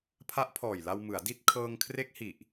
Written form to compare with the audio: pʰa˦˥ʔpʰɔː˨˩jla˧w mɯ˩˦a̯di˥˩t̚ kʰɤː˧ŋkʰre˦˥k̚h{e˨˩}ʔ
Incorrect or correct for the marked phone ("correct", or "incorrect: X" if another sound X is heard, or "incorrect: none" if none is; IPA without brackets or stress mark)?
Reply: incorrect: i˨˩